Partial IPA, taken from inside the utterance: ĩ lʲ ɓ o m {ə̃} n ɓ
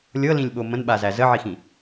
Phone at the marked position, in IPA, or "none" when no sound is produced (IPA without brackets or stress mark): ə̃